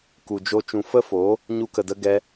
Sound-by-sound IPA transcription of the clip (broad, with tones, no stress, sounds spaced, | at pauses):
k u˨ d͡ʒ o˧ t͡ʃ ũ˨ f ə˦ f oː˨˦ | ɲ u˧ k ə˨ d ə˧ ɡ ɛ˧